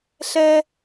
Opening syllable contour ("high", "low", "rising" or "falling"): high